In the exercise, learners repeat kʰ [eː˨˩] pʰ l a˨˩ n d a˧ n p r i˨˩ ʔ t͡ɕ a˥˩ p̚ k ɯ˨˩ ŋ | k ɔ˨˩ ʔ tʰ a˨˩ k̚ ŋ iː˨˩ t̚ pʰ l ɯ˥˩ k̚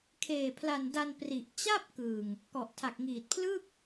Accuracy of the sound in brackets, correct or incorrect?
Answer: correct